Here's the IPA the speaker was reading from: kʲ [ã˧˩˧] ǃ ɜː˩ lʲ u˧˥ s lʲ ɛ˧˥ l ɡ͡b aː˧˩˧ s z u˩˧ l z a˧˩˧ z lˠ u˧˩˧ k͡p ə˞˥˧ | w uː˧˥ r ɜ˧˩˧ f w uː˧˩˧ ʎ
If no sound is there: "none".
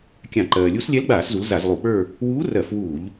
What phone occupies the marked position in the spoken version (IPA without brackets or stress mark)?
ã˧˩˧